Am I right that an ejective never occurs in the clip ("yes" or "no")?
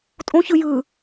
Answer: no